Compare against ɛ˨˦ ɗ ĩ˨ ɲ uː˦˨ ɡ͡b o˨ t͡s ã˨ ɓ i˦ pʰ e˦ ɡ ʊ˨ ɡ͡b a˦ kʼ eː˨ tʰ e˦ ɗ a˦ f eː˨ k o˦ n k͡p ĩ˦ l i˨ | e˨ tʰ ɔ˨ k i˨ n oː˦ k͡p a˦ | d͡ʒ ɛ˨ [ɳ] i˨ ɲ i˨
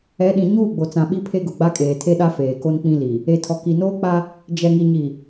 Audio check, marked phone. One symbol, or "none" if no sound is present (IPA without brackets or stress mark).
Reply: ŋ